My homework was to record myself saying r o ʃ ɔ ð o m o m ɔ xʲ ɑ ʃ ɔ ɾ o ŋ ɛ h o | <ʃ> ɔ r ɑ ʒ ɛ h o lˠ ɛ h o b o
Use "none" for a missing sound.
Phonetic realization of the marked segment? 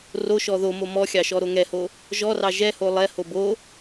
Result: ʒ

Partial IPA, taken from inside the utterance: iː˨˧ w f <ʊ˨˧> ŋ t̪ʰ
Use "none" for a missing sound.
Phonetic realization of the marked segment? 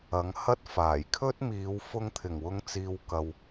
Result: ʊ˧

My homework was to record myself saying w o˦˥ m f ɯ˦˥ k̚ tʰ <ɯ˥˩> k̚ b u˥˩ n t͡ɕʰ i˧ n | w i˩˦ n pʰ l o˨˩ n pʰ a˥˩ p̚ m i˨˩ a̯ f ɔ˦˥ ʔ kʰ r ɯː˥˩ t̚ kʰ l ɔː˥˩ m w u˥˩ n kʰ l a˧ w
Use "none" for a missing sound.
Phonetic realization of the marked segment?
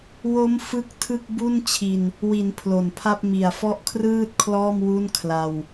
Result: ɯ˥˩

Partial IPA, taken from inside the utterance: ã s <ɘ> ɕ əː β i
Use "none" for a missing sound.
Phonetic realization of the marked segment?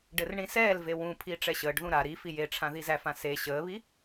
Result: e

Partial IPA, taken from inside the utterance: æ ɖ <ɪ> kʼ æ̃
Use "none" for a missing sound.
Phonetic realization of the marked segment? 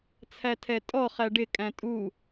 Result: ɪ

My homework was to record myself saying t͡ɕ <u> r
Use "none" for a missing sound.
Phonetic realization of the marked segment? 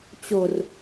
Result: o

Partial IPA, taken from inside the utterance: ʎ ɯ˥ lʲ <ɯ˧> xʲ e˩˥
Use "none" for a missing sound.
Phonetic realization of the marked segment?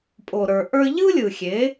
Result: ɯ˩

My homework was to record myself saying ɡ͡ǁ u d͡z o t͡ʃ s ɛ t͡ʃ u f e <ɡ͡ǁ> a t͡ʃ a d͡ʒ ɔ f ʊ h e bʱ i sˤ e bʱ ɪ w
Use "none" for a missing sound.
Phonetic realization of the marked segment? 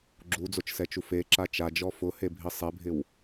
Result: ǁ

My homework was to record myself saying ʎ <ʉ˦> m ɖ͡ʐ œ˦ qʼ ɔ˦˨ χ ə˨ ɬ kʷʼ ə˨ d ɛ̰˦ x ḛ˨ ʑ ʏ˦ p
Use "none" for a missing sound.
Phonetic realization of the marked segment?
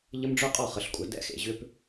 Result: ə˦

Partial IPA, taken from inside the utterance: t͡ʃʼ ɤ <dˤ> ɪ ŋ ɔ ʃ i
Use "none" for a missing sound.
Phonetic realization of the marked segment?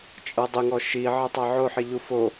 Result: dˤ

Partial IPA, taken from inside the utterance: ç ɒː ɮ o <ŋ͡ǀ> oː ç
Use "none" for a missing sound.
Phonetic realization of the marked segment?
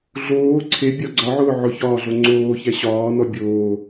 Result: ŋ͡ǀ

